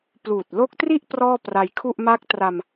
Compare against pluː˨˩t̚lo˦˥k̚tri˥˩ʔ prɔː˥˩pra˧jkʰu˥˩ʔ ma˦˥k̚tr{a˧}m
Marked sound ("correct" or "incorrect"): correct